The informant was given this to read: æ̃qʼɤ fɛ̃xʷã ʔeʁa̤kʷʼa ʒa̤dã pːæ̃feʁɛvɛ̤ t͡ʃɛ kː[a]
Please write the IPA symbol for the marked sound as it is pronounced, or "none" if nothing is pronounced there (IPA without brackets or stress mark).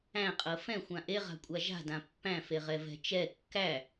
æ